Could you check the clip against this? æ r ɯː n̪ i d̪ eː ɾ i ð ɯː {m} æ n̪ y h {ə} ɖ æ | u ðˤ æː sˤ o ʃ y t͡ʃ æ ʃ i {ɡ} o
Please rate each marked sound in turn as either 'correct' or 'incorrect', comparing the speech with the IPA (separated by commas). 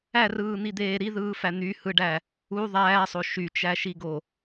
incorrect, incorrect, correct